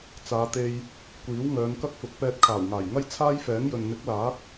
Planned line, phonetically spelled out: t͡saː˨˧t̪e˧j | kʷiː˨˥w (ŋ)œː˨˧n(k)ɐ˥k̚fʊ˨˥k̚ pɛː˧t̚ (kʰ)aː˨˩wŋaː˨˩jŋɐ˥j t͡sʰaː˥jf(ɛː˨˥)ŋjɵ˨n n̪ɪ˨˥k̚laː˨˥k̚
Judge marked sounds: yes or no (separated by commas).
yes, yes, yes, yes